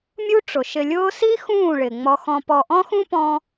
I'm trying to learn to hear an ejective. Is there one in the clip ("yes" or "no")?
no